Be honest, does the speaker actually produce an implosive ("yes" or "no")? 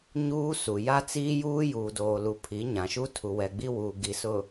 no